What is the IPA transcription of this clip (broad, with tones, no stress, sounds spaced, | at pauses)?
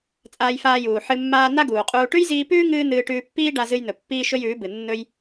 t͡sʼ aː˧ j f aː˧ j uː˨ ħ ɨ˧ mː aː˦ n̪ a˦ ɡ uː˨ qʼ uː˧ ʈ ʉ˦ j z iː˧ p ʉː˦ ŋ ɨː˦ n̪ ɨː˧ ʈ ʉː˧ pː iː˦ ɖ a˧ z ɨ˧ j n̪ ɵ˨ pː iː˦ ʃ ɵ˦ j ʉː˨˦ b ɨ˨ nː ɵ˦ j